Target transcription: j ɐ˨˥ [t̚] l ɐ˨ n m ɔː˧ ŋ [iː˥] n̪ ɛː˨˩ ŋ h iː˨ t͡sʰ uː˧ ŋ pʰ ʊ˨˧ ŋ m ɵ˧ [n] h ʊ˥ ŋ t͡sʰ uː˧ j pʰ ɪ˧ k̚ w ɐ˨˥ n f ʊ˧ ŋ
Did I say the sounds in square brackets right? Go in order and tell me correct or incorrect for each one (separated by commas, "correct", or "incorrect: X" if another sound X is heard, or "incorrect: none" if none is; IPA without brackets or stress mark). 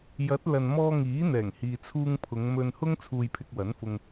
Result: correct, incorrect: iː˨˥, correct